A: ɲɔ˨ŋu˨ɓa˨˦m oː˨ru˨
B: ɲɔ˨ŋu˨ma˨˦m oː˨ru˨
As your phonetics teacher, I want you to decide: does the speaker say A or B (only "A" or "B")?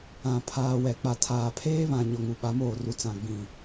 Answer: A